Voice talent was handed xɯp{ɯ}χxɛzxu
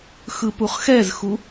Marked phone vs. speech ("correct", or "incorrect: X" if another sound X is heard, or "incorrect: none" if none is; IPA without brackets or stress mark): incorrect: u